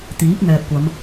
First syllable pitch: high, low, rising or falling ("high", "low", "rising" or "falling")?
rising